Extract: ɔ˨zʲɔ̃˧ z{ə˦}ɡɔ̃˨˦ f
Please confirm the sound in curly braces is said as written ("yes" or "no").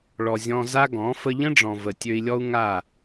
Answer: no